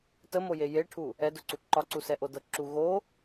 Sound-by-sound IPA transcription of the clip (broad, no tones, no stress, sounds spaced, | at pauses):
t ə m o j e j e ʈʰ u | ɛ d ʊ ǀ u ǃ ɒ ǀ u s ɛ ʔ o d ɤ ǁ u ɣ o